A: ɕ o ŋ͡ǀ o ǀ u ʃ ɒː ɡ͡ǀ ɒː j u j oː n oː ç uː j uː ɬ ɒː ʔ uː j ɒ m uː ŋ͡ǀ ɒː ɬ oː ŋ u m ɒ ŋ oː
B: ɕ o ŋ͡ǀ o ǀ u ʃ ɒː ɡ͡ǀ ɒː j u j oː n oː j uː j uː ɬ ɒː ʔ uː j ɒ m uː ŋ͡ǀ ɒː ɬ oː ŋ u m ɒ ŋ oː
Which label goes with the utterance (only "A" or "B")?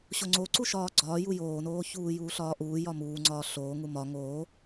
A